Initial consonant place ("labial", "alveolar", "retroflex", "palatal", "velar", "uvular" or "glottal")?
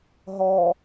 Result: glottal